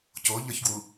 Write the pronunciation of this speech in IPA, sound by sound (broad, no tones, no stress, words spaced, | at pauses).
coʎɒçɡwu